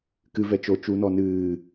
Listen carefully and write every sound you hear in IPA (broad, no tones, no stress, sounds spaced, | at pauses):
k ɨ v ɛ t͡ʃ o t͡ʃ u n ɔ n ɨː